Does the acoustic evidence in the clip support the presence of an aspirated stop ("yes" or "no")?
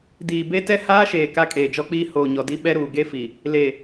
no